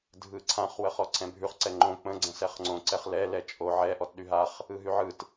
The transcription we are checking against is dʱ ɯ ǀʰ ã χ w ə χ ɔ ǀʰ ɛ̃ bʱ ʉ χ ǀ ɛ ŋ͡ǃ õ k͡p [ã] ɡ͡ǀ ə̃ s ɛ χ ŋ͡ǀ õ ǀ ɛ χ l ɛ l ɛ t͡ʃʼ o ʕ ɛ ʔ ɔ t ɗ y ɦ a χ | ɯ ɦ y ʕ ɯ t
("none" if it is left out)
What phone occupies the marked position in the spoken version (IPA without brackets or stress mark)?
ə̃